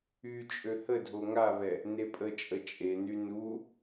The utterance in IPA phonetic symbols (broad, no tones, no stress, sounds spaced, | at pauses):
y t͡ʃʼ ø h ə dʱ o ŋ a β ɛ | n e pʼ ə t͡ʃʼ ə t͡ʃʼ e n y n u